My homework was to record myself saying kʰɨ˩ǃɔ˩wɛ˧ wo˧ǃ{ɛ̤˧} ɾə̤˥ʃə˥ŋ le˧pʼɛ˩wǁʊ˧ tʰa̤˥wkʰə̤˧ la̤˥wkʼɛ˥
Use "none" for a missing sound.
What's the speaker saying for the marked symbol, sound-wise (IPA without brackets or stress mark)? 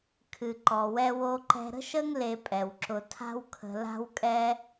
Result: ɛ̤˧